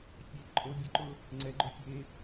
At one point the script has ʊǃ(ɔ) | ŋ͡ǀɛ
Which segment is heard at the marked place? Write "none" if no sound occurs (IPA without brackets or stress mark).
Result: ʊ